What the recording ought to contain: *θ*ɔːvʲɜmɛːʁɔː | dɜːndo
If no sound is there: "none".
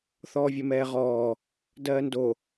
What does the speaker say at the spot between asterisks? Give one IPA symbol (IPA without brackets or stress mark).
θ